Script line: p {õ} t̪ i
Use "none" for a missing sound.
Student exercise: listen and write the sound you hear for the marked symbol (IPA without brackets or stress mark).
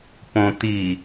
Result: õ